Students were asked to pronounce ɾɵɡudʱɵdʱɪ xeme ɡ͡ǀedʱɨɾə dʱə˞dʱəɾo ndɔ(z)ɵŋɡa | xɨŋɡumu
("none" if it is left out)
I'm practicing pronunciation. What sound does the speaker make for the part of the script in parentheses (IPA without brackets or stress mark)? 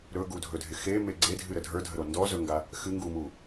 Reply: z